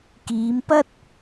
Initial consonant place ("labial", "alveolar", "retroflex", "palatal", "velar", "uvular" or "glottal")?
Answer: velar